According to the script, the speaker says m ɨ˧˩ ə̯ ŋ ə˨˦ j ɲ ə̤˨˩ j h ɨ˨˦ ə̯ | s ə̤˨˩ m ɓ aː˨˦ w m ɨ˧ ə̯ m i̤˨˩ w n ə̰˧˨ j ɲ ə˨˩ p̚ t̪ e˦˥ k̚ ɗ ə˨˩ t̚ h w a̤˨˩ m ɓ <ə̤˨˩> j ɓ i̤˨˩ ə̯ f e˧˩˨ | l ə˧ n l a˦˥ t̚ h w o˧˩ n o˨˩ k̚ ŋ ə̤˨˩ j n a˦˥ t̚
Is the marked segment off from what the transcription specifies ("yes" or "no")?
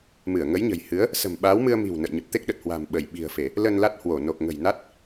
yes